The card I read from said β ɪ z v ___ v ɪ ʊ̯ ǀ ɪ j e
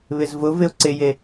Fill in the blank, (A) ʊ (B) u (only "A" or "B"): A